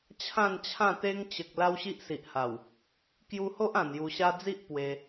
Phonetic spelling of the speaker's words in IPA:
t͡ɕʰ ã˥˧ n t͡ɕʰ ã˥˧ t̪ e˦ ŋ t͡ɕ ə˨ k̚ l a˦ w ɕ i˦ ʔ s i˨ ʔ h a˨˩ w | k j u˧ h o˦ ʔ ã˨˩ n j u˧ ɕ a˦ d͡z i˦ ʔ p w e˧

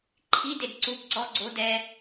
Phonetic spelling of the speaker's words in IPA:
ǃʰ i d e d ǀ u b ǀ ɔ ɡ͡ǀ o d ɛ

